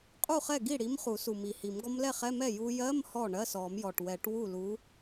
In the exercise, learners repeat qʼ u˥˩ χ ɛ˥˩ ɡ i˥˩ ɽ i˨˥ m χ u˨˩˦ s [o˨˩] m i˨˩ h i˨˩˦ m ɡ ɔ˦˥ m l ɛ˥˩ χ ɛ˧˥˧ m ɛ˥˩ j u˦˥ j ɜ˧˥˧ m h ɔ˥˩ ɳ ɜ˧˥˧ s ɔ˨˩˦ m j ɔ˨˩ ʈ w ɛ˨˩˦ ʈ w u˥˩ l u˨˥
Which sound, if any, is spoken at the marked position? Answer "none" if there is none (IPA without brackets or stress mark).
u˨˩